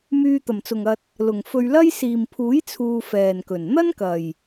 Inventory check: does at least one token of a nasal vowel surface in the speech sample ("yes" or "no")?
no